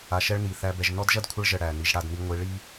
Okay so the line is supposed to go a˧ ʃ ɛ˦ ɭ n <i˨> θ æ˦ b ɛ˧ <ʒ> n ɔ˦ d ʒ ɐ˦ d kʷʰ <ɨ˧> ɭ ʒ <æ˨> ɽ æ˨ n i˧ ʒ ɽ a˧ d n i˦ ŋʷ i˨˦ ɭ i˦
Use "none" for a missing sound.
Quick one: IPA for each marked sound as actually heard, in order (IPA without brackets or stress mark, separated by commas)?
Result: i˨, ʒ, ə˧, ə˨